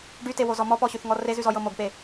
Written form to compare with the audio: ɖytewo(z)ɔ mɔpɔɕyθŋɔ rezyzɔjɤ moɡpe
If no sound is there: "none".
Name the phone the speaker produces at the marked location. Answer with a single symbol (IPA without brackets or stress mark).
z